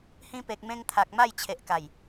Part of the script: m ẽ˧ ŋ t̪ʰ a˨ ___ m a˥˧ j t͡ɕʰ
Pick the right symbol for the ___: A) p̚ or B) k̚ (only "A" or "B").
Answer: B